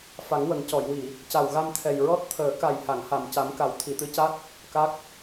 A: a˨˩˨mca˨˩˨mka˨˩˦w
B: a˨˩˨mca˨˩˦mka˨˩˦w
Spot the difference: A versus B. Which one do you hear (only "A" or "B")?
B